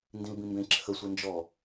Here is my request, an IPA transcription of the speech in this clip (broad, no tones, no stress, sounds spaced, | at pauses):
n d ĩ l b ĩ m b ẽ ǁʰ ə sʷ e n d͡ʒ ɔ